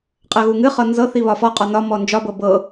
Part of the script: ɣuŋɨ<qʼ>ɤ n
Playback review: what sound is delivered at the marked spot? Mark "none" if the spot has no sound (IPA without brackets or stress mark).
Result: χ